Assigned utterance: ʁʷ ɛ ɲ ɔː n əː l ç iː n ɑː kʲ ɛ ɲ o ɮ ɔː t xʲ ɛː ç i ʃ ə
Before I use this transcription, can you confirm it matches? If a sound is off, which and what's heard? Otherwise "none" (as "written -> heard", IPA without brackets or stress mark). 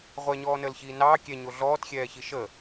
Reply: none